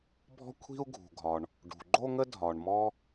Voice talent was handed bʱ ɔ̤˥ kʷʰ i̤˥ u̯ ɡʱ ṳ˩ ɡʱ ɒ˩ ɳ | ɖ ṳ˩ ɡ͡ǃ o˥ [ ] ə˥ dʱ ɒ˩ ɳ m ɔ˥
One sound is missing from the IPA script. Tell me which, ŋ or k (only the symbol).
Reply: ŋ